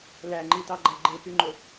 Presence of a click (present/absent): present